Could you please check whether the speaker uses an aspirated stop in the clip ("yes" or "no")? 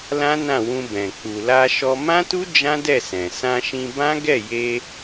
no